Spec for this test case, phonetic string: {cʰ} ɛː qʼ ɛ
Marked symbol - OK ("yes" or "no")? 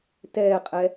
no